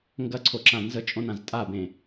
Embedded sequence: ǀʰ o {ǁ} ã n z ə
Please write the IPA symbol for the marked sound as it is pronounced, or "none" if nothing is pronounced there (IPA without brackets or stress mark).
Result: ǁ